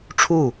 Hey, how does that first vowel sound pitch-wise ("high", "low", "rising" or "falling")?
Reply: falling